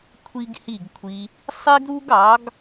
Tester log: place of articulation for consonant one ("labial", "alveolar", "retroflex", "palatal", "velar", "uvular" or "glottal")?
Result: velar